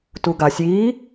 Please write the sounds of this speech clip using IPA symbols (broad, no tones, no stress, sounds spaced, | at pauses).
t u ɡ a sʲ i